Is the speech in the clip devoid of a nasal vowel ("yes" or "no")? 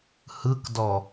yes